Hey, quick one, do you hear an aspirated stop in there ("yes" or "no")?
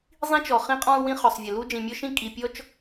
no